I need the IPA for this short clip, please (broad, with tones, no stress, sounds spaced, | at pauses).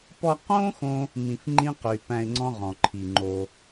p ɔ˧ q õ˦ x õ˦ | m ĩ˧ f ŋ͡ǃ ĩ˦ q y˨ p æ̃˧ ɪ̯ ŋ͡ǀ ɔ̃˦ ʁ ɔ̃˨ ǃʰ i˨ ŋ͡ǃ o˧